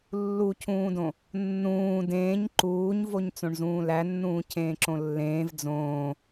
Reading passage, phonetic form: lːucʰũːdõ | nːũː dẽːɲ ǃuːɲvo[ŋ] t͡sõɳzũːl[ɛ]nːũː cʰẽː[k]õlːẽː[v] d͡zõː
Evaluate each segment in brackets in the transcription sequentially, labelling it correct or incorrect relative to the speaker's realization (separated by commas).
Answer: incorrect, incorrect, incorrect, correct